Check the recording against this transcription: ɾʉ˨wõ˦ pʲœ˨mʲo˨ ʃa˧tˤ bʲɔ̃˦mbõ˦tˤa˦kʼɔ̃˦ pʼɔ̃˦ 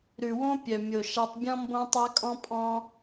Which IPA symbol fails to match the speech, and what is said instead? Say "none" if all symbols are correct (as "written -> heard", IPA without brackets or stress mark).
none